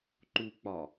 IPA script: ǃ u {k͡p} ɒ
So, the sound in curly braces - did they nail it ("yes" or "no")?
yes